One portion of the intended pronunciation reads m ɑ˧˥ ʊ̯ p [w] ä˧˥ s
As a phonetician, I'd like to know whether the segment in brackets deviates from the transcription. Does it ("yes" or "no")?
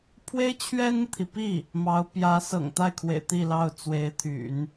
yes